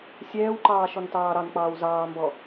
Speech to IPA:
sʲ ɛː w ǃ ɑː ʃ ɔ n t ɑː ɾ ɑ n k͡p ɑː w z ɑː m b ɔ

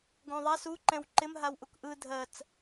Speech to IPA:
ɡ õ ðˤ a s u ǃ ɛ̃ w ǃ ɪ m ɦ a w ʔ u k ʔ ɯ dʱ ɜ t͡s

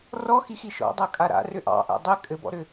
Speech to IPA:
r ɔ x i x i ʃ ɔ̰ dˤ a kʼ a ɾ a̰ r ʏ ʔ ɑ̰ ʔ a̰ dˤ ɘ kʼ ɘ b ɔ̰ ɾ ʏ

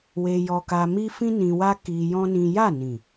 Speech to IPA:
w e˧ j ɔ˧ k a˧ m i˦ f ĩ˦ n ĩ˧ w a˦ k i˧ j ɔ̃˦ n ĩ˦ j a˦˨ n ĩ˨

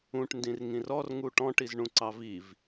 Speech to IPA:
ũ ʈ n d ĩ r ŋ ĩ r ɔ r ŋ u ʈ ɔ̃ ʈ i z ɳ ũ ǀ ɑ v i v

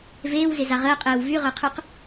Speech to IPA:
v eː w z ɪ z a ʁ əː qʼ eː w v y ʁ œ qʰ y q

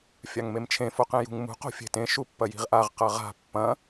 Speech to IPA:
fʲ a ŋ m e m t͡ʃʰ ẽ f o q ẽ j ṳ ŋ m ṳ q o̤ fʲ e̤ t ẽ ʃ u pː ɐ j i̤ ʁ ʔ a ʁ q ɐ ʁ a̤ pː ɐ̃

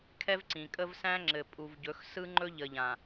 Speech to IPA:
kʰ ɛ˦ v ǀ ĩ˨ kʼ ə˦ v s æ̃˦ ŋ͡ǁ ɘ˨ pʼ u˨ v ɟ ɵ˨˦ x s ɯ˦ ŋ͡ǃ ɵ˦ ʎ ə˨ ʎ ã˨

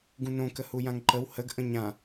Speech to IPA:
ɡ ũ n õ k ə h u j ã ŋ ǃ ə w h ə ɡ ʔ ə̃ ɲ ã

